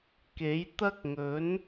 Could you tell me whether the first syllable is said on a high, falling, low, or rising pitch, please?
rising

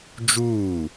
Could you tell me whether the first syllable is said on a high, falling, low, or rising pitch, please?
falling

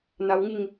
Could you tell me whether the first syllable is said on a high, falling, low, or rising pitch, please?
low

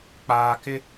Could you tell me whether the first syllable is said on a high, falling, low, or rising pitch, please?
low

